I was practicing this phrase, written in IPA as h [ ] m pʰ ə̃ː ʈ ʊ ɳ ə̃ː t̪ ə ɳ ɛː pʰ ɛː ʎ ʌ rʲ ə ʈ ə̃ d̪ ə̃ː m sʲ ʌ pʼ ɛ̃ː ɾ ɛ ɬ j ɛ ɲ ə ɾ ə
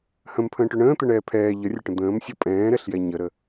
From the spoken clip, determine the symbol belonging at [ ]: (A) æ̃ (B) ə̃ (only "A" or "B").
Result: B